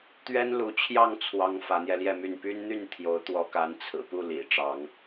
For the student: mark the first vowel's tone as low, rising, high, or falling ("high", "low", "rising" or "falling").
high